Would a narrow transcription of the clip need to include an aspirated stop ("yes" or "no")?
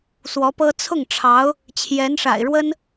yes